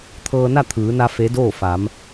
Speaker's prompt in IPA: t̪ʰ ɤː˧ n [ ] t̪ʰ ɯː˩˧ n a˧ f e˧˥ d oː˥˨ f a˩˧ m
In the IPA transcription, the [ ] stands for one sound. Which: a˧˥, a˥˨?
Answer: a˥˨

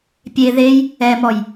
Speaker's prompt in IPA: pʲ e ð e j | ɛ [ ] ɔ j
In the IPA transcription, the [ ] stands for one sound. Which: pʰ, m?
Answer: m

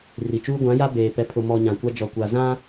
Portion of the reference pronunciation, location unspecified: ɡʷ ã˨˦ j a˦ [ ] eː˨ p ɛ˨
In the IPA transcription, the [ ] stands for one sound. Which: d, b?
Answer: b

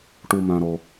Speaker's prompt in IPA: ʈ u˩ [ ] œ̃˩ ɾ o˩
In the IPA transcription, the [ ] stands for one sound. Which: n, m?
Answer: m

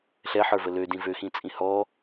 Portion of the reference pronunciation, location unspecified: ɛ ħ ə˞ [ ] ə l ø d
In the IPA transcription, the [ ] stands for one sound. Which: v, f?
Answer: v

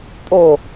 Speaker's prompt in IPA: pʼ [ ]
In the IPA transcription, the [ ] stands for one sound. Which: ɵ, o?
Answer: o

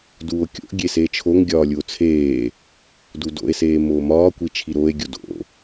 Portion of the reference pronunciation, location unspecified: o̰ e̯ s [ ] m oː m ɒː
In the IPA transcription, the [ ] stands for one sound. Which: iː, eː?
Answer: eː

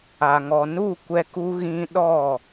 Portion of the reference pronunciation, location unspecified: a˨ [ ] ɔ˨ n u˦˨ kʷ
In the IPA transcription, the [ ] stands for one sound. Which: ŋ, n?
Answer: ŋ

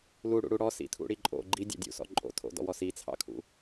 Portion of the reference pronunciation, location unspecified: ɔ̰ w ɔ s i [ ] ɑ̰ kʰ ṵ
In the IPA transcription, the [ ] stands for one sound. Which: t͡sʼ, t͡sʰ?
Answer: t͡sʰ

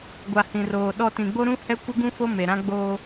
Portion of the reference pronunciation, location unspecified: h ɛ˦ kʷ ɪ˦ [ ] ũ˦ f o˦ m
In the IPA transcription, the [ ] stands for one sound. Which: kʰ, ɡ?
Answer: ɡ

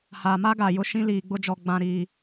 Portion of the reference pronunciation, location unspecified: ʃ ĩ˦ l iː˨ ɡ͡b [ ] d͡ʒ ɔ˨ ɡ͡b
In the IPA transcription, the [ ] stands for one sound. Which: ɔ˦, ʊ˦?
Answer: ʊ˦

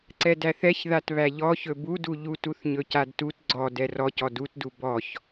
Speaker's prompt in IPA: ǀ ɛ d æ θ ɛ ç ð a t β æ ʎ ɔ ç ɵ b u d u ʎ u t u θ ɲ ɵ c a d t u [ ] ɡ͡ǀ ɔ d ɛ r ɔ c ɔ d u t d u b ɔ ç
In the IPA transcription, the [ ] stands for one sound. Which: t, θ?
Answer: t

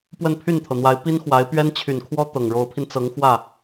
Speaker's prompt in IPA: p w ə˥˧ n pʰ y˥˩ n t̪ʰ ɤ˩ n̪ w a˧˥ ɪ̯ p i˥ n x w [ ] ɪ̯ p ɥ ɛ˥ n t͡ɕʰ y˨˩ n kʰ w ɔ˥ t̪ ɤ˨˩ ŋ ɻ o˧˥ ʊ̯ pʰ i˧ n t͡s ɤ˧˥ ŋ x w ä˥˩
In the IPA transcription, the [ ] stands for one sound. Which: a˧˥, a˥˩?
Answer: a˧˥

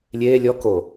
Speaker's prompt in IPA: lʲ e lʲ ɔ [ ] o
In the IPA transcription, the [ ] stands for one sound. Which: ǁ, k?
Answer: k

